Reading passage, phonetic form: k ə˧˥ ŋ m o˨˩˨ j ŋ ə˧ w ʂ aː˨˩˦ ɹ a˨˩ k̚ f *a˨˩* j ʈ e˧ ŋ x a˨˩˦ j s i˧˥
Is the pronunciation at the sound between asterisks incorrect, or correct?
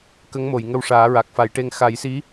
incorrect